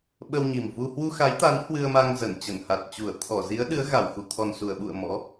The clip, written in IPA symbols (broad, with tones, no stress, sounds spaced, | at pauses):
ɓ ə˧ w ɲ i˨˩ m v u˧ h w u˧ x a˨˦ j t̪ a˨˦ n h w ɨ˧ ə̯ m a˧ ŋ z ə˧˩ n t͡ɕ ə˧˩ n h a˨˩ t̚ t͡ɕ u˧˩ ə̯ t̪ʰ ɔ˧˩ z i˨˦ ə̯ ɗ ɨ˨˦ ə̯ ɣ a˧˩ w x u˧˩ t̪ʰ ɔ˨˩ n s u˧˩ ə̯ ɓ ṵ˧˨ ə̯ m ɔ̰˧˥